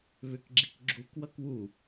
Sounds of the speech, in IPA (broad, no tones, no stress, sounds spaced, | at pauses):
β ʏ k ɡ͡ǁ i k ɡ͡ǁ u k w ʌ k w u